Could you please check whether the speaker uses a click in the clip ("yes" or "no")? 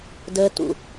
no